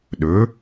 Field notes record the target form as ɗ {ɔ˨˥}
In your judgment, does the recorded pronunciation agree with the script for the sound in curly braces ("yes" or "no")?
no